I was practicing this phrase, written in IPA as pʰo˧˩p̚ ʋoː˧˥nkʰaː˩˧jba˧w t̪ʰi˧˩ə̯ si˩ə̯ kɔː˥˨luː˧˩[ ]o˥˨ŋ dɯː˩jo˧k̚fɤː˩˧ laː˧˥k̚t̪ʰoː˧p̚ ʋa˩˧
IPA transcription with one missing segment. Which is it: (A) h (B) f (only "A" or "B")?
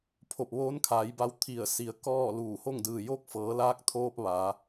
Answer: A